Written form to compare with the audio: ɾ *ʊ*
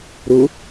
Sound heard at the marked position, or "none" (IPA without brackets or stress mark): ʊ